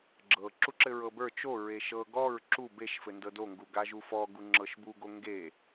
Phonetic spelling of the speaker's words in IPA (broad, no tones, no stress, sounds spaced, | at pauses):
ɡ͡ǁ ɤ ǁ u ǁ ɘ ɹ ɤ b ə˞ t͡ʃ o ɹ e ʃ ɤ ɡ ɔ ɹ ǁ u b e ʃ f ɘ n d ɤ d o ŋ ɡ u ɡ a ʒ u f ɔ ɡ u ŋ͡ǁ ɤ ʃ b u ɡ o ŋ ɡ e